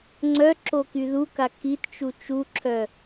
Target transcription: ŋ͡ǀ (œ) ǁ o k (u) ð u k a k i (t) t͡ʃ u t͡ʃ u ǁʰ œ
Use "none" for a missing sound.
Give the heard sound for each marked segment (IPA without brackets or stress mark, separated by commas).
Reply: œ, y, t